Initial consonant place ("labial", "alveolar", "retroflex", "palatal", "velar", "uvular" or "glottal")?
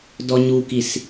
alveolar